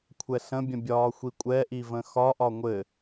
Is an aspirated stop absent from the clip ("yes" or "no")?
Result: no